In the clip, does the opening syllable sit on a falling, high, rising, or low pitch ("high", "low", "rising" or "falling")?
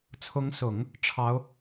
rising